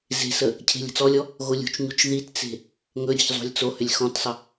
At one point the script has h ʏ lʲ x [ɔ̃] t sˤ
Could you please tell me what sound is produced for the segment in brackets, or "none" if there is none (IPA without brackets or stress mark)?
ɔ̃